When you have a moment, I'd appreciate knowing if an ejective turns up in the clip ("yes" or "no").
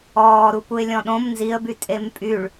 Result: yes